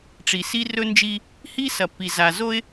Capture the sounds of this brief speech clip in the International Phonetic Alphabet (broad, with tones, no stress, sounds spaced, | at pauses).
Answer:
ʈ͡ʂ i˨ s i˦ r ɵ˦ n d͡ʒ i˦ | h i˦ s ɐ˨ p i˨ z a˨ z o˦ ɪ̯